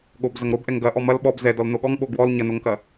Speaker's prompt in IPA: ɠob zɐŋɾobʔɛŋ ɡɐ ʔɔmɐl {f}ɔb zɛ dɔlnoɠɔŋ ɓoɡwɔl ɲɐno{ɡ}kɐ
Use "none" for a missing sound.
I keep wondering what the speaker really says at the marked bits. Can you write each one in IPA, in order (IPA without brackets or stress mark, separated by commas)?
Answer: ɓ, ŋ